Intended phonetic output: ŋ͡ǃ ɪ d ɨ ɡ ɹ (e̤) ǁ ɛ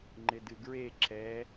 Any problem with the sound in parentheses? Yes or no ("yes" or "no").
yes